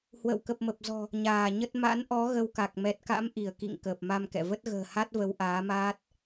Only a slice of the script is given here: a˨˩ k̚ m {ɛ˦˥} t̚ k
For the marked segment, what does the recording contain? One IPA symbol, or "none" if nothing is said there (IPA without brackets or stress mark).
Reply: ɛ˨˩